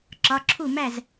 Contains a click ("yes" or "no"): yes